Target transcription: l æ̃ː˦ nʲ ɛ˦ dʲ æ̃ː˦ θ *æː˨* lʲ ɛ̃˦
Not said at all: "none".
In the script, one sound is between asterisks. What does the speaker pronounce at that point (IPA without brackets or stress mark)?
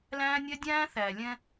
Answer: æː˨